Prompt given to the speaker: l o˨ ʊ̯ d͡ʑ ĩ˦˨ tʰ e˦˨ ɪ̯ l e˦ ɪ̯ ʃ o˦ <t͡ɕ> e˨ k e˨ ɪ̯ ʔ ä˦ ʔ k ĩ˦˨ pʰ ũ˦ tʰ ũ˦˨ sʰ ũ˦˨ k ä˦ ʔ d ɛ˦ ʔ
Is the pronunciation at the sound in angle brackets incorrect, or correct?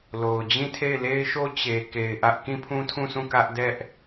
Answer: correct